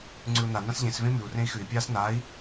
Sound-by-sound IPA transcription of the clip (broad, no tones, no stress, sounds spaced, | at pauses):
ŋ͡ǀ ʉ u̯ n a n ã s ʎ ẽ s v ẽ m ʉ u̯ r ẽ i̯ x ʉ i̯ pʲ aː s n aː i̯